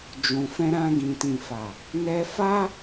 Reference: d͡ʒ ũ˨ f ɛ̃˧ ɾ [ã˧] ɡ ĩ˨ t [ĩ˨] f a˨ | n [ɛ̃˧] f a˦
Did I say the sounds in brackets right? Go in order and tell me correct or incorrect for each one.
correct, correct, incorrect

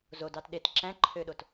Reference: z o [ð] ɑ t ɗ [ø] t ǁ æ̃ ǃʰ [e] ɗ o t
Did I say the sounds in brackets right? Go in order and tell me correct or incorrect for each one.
incorrect, incorrect, incorrect

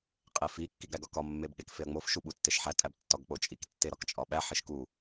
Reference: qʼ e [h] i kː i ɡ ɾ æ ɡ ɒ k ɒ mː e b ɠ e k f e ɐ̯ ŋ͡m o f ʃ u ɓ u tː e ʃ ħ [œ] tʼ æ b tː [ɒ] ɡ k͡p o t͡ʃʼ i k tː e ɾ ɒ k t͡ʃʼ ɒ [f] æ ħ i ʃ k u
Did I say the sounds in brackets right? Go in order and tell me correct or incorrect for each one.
incorrect, incorrect, correct, incorrect

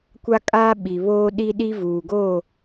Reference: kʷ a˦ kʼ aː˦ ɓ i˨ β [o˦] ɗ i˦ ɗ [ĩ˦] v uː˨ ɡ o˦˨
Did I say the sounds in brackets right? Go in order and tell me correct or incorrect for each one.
incorrect, incorrect

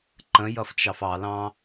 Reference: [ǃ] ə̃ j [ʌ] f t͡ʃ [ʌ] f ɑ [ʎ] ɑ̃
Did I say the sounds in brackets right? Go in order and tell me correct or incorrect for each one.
correct, correct, incorrect, incorrect

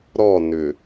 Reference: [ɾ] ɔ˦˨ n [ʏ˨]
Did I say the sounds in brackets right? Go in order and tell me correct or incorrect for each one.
correct, correct

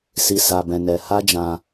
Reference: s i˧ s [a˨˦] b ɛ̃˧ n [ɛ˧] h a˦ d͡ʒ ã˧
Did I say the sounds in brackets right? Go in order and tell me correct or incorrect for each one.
incorrect, correct

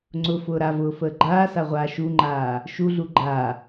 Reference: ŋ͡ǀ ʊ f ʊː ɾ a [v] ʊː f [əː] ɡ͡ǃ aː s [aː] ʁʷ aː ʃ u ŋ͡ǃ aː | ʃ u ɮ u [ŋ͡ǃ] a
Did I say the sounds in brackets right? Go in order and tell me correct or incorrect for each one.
correct, correct, incorrect, incorrect

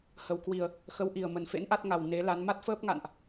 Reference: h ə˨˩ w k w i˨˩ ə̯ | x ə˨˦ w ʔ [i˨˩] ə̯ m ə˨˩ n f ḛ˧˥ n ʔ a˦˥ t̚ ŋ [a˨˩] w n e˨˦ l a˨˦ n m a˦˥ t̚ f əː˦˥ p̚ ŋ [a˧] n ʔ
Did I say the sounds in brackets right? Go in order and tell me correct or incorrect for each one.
correct, correct, incorrect

